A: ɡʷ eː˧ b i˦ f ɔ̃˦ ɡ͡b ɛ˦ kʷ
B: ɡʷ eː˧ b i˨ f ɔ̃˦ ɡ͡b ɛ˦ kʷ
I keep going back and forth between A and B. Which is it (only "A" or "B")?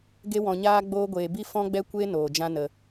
A